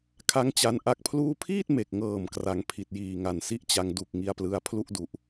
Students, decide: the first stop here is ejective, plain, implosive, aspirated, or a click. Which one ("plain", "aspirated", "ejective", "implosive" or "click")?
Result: aspirated